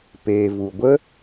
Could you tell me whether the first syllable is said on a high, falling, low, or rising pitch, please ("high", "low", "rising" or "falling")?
low